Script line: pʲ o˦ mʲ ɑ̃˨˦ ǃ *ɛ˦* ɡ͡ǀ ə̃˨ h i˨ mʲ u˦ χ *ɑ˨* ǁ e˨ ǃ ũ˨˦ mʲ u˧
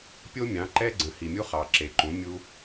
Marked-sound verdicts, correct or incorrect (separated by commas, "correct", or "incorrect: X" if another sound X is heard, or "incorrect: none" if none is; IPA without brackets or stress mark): correct, correct